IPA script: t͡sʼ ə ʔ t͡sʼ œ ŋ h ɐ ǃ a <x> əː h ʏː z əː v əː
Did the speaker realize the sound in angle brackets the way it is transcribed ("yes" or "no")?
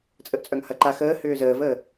yes